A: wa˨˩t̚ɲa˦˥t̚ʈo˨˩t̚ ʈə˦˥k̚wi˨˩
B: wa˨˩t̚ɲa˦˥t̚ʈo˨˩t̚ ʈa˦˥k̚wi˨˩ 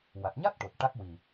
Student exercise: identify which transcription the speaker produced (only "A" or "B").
B